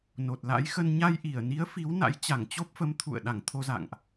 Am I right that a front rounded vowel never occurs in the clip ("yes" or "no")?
yes